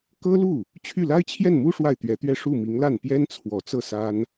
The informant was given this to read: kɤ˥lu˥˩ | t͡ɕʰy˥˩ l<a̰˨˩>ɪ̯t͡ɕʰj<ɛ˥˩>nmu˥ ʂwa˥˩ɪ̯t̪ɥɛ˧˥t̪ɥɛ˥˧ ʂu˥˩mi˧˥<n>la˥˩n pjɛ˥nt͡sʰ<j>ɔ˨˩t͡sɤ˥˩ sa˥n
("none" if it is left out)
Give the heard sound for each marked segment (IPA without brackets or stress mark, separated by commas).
a˥, ɛ˥˩, ŋ, w